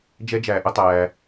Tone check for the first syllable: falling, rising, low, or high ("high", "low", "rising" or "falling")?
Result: high